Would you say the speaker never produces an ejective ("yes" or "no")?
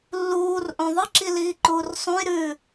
yes